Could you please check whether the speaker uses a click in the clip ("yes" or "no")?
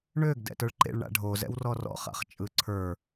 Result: yes